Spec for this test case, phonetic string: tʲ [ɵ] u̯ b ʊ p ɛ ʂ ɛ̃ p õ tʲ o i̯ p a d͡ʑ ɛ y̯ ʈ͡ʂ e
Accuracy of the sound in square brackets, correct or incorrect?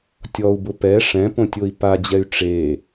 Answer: incorrect